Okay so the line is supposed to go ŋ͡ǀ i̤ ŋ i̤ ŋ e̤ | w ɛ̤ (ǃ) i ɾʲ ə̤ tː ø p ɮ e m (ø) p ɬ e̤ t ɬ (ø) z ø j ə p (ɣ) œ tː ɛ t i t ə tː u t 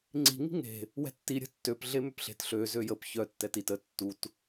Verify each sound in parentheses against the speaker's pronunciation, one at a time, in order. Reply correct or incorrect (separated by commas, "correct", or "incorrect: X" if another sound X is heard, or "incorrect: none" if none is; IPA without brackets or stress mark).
incorrect: tː, correct, correct, incorrect: ç